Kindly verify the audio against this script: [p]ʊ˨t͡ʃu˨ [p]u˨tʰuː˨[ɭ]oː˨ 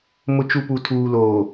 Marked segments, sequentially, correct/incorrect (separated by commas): incorrect, correct, incorrect